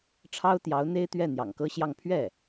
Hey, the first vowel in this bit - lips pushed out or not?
no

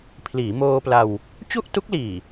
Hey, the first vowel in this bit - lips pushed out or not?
no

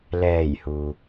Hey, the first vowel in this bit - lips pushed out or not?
no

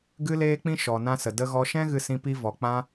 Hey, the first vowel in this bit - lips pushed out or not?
no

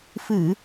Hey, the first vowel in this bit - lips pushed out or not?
no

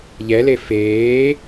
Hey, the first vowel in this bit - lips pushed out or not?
no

